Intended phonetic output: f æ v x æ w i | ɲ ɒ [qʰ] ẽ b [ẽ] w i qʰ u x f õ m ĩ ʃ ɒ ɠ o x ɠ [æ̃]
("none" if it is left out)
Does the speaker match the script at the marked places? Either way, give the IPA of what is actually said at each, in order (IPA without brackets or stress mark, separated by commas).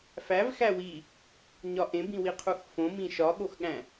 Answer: ʔ, ĩ, æ̃